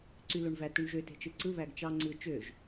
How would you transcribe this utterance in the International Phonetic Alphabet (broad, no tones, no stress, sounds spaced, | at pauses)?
ǀ y l o ɳ v æ t u ɳ ʒ ø t e̤ t͡ʃ ɯ ǀ ɯ β æ ɡ t͡ʃ ɑ ŋ͡ǀ ɯ t͡ʃ ø ʒ